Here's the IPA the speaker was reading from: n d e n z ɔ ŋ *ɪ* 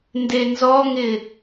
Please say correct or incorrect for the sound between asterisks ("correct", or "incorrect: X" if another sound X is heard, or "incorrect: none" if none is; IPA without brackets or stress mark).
correct